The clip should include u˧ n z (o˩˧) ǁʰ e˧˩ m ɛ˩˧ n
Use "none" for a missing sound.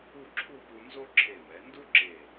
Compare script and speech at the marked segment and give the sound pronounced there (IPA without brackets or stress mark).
o˥